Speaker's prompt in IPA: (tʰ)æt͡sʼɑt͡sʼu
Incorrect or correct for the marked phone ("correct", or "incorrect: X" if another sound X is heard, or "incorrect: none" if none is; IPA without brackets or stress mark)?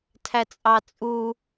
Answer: correct